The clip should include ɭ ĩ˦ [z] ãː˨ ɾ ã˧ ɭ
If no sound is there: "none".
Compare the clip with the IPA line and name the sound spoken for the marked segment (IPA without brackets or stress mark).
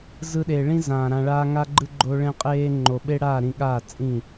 z